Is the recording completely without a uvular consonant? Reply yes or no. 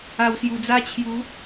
yes